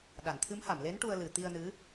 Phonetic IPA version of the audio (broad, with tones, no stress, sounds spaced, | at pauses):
ɗ a˨˩˨ n t̪ʰ ɨ˧˥ m h a˨˩˨ m l e˧˥ n ʈ u˧ ə̯ l ɨ˨˩ t̪ i˧ ə̯ n ɨ˧˥